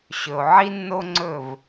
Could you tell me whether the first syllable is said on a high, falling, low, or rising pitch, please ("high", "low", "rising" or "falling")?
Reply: low